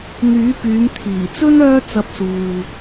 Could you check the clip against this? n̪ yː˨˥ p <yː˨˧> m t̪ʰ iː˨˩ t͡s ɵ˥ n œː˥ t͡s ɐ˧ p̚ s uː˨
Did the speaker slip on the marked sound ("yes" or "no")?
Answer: no